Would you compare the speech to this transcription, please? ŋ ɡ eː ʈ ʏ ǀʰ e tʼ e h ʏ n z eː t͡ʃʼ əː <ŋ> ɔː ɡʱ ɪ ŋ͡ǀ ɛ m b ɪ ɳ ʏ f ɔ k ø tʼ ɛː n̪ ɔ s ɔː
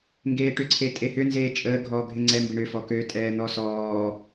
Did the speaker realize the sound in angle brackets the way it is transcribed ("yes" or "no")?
no